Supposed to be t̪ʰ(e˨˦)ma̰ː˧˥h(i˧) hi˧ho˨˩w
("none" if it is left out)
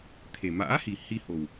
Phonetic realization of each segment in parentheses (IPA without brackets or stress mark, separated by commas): e˨˩, i˨˩